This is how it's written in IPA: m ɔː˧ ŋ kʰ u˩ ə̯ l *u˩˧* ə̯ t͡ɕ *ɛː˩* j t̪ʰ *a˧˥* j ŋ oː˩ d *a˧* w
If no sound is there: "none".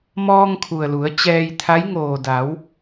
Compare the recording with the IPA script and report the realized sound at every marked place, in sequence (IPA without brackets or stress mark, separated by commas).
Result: u˩˧, ɛː˧, a˧˥, a˩˧